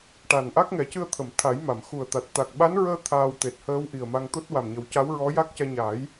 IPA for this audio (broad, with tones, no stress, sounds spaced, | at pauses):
ʈ a˨˩ n ʔ a˦˥ k̚ ŋ ɛ˨˩˦ c ɨ˧ ə̯ t̪ʰ ə˨˩˨ m t̪ʰ a˨˩˦ j m a˨˩˨ m x u˨˩ ə̯ t̪ a˨˩ t̚ t̪ a˨˩ k̚ ɓ a˧˥ n ɹ əː˧ t̪ʰ aː˧ w t̪ e˨˩ t̚ h əː˧˥ w ʔ i˨˩ ə̯ m a˧ ŋ t̪ o˦˥ t̚ w a˨˩ m ɲ ə˨˩˦ w c a˧˥ w ɹ ɔ˧˥ j a˦˥ k̚ c ɛ˧ ɲ a˨˩˦ j